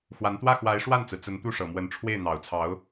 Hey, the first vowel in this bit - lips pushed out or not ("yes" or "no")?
no